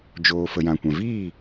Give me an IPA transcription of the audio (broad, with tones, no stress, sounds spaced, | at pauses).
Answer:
d͡ʒ oː˨ f ə˨ j ã˨ kʷ ɛ̃˨ v iː˦˨